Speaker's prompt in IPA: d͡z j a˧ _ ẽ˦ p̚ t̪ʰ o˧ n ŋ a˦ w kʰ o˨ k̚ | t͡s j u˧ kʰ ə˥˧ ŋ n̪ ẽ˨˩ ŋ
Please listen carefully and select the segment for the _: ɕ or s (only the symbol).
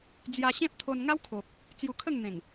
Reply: ɕ